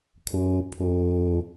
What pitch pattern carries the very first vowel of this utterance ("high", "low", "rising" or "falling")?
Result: high